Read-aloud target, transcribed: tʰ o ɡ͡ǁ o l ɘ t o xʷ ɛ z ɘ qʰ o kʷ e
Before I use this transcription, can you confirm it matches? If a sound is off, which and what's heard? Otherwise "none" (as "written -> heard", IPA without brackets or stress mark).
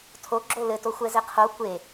none